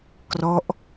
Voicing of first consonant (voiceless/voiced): voiceless